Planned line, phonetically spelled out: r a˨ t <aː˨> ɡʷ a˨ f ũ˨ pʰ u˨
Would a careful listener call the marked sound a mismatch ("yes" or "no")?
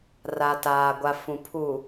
no